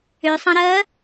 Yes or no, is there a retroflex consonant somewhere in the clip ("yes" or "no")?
no